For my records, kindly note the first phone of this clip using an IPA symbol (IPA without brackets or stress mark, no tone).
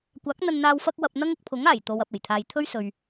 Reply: kʷ